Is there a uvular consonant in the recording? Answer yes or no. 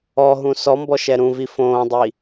no